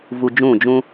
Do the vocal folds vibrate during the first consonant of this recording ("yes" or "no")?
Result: yes